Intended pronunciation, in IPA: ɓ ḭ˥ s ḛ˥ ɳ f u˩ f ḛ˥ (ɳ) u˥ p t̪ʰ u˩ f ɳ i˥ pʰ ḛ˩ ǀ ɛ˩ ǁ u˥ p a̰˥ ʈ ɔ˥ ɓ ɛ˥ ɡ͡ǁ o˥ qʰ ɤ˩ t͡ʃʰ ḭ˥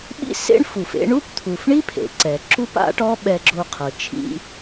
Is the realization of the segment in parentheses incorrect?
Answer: no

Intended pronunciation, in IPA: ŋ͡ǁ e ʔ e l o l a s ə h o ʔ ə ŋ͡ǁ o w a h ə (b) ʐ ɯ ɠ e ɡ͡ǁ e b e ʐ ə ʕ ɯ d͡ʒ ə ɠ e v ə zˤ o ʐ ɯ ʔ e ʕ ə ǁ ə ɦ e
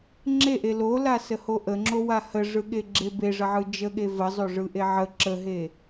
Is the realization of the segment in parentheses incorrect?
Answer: yes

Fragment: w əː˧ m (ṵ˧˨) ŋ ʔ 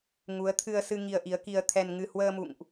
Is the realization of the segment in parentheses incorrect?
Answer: no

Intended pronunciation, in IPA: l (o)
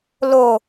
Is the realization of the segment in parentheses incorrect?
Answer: no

